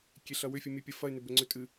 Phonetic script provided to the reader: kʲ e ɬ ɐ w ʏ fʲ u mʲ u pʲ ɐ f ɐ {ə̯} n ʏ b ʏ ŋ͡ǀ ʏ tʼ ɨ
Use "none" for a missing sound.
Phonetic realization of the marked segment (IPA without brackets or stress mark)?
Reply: ɪ̯